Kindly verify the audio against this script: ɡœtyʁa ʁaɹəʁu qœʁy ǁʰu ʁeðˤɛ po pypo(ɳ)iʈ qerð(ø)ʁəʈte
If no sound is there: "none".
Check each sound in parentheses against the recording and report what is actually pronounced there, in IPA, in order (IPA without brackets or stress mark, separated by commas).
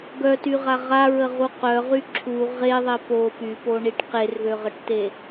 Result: ɳ, ø